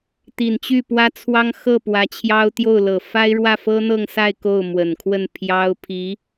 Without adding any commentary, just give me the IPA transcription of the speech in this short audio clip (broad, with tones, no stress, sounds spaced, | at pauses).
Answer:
t̪ i˨˩ n t͡ɕ y˥˩ p w ä˥ t͡sʰ w ɑ˥ ŋ x ɤ˥˩ p w ä˧˥ t͡ɕʰ j ɑ˥ ʊ̯ t̪ j o˥˩ ʊ̯ l ɤ˨˩ f a˥ ɪ̯ ɻ w ä˥˩ f ɤ˥ n̪ ɤ˥˧ ŋ s a˥˧ ɪ̯ k o˥˩ ʊ̯ m w ə˨˩ n kʰ w ə˥˩ n pʰ j ɑ˥ ʊ̯ pʰ i˧˥